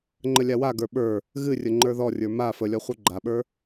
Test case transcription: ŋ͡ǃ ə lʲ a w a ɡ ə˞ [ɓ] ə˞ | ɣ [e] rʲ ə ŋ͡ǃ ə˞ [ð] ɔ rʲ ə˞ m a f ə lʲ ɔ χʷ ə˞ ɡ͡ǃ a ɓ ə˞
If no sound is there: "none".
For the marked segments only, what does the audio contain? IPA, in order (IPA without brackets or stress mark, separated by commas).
ɓ, ɨ, ð